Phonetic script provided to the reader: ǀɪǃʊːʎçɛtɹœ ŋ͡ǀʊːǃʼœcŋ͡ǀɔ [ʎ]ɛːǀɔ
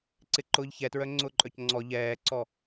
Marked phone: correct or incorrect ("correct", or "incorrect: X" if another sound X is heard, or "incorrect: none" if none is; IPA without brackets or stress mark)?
correct